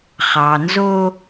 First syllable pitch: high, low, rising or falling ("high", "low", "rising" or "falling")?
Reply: low